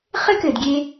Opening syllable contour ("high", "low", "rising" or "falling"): high